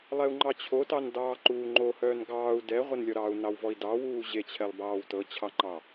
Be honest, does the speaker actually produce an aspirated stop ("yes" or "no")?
yes